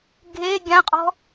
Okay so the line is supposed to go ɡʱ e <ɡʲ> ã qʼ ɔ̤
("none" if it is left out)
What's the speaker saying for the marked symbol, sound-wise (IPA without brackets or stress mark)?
ɡʲ